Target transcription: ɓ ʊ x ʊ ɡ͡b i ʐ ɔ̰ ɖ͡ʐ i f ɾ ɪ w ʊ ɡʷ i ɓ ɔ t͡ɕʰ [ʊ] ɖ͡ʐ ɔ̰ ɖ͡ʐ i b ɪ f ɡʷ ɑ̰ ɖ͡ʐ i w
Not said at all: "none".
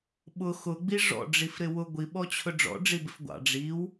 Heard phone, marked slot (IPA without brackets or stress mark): ʊ